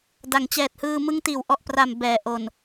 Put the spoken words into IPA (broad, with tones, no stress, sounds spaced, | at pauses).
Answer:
d a˩˦ ŋ t͡ɕ ɛː˨˩ t̚ h ɯː˧ m ɯ˦˥ ŋ t iː˩˦ w ʔ ɔ˨˩ ʔ p r a˨˩ m b ɛː˩˦ ʔ o˨˩ n